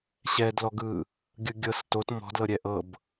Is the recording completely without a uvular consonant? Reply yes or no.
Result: yes